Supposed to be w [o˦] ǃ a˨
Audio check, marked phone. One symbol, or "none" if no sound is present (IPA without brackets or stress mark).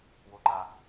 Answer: o˨